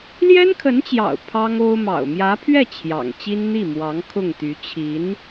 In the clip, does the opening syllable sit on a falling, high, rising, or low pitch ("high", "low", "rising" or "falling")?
high